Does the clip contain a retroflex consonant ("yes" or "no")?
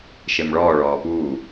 yes